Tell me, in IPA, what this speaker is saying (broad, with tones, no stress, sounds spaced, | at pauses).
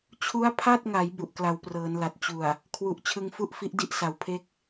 t͡ɕʰ u˦˥ a̯ pʰ a˥˩ t̚ ŋ a˩˦ j b u˨˩ ʔ k l a˨˩ w p r ɤː˩˦ n l a˨˩ t̚ t͡ɕ u˨˩ a̯ | kʰ w u˨˩ ʔ t͡ɕʰ ɯ˧ ŋ f u˥˩ ʔ f i˦˥ ʔ d i˥˩ ʔ s a˩˦ w pʰ e˥˩ k̚